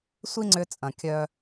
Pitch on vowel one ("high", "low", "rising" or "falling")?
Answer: high